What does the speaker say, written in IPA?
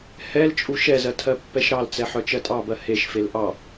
h ɛ l t͡ʃʼ u ʃ ɛ z ɜ tʰ ɜ pː ɛ ʃ ɾ ɑ l t͡s ɛ ħ œ t͡ʃ ɜ tʼ ɑ b ɜ h e ʃ f e l ʔ ɑ

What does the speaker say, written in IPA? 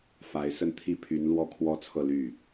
f a˧˥ ɪ̯ s ə˥˩ n t̪ʰ i˥ pʰ y˧˥ n l w ɔ˥˩ kʰ w ɔ˥ t͡sʰ ɤ˥˧ l y˥˩

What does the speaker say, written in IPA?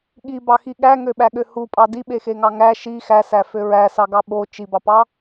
ɠ i b ɑ x i ɠ æ ŋ ø ɓ æ ɠ ø h u pʼ ɑ d i ɓ e x e ŋ ɑ ŋ æ ʃ i x æ s æ f ø ɹ æ s ɑ ɡ ɑ ɓ o t͡ʃ i b ɑ p ɑ

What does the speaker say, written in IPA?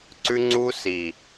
ǀ ʉ˦ ŋ͡ǀ u˦ s i˨

